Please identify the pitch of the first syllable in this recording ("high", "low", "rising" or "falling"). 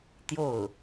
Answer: falling